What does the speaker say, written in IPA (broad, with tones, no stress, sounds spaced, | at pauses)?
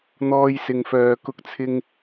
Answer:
n̪ ɔː˧ j s ɪ˨ ŋ f œː˨ k ʊ˧ k̚ t͡sʰ ɪ˧ ŋ